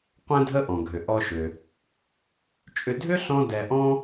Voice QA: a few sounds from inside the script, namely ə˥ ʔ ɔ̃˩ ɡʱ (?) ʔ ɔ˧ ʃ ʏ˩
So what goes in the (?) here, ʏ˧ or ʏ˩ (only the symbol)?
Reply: ʏ˩